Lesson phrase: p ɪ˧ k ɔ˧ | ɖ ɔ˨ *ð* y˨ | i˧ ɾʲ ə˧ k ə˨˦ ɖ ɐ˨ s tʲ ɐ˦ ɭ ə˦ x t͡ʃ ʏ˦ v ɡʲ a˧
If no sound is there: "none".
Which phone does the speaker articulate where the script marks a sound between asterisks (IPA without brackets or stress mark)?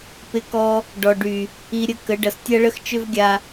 ɖ